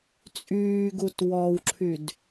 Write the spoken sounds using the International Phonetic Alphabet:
t͡sʼ yː ɡ u t w ɔ w ǁʰ y d

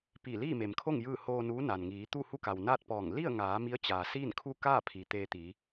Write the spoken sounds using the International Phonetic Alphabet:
p i˧˩ l iː˥˨ m e˩ m kʰ o˥˨ ŋ j ɯː˥˨ h oː˧ n uː˧˥ n a˩ n ŋ iː˩˧ t̪ u˥˨ h u˥˨ k a˩ w n aː˥˨ t̚ p ɔː˧˩ ŋ l i˥˨ ə̯ ŋ aː˩˧ m i˧˥ ə̯ t͡ɕ aː˩ s iː˥˨ n kʰ u˥˨ k aː˥˨ pʰ i˩ t̪ eː˧ t̪ iː˩˧

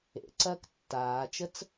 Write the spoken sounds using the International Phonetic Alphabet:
ḛ ǀ ɐː k tː aː t͡ʃ ə t͡s

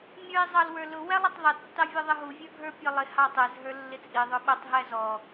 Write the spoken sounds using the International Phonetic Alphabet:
mʲ ə˞ i̯ zˤ ɑ l w ə˞ l ʊ w æ lˠ ɪ tˤ ðˤ ə tː ɑ vʲ ə˞ ðˤ ə ɦ u vʲ ə˞ ɡʱ ə˞ pʲ ɔ lˠ ɪ h ɑ tˤ ɛ z ɦ ə˞ lː ɪ t͡sʼ i ðˤ ʊ ɓ ʊ tˤ ɦ æ z ɔ

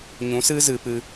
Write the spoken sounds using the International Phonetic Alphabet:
ɲ ũ˨˦ s ɨ˦ z ɨ˨ p ɨ˧

